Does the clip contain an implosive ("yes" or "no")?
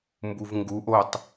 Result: no